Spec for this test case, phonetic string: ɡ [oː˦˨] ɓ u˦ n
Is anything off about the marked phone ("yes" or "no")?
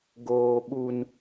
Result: yes